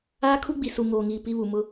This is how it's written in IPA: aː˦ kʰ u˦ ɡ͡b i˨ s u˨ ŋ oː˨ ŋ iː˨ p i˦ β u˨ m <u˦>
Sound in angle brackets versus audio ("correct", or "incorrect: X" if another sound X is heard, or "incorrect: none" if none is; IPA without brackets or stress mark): incorrect: ʊ˦